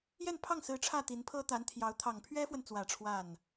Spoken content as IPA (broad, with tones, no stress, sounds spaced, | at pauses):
j ɛ˥˧ n pʰ ɑ˥˩ ŋ s ɹ̩˧˥ ʈ͡ʂʰ ä˥˩ t̪ i˧˥ n pʰ ɤ˥ t̪ a˧˥ n t̪ʰ j ɑ˧˥ ʊ̯ t̪ʰ ɑ˨˩ ŋ pʰ ɥ ɛ˥ f w ə˨ n t͡s w ä˨˩ ʈ͡ʂʰ w a˥˩ n